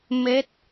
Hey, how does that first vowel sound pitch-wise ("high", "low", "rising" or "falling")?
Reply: rising